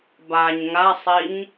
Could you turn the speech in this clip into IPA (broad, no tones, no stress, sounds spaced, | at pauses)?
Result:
b a ɲ ŋ a sˤ i ɲ